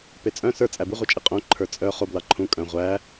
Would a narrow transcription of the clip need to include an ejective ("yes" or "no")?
yes